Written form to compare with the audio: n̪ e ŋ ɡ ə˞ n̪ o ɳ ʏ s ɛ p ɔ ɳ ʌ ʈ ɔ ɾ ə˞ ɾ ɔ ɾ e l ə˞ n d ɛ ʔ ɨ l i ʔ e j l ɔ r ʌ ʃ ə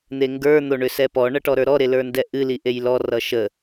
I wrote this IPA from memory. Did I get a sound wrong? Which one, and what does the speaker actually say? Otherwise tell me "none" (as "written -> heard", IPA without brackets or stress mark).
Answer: none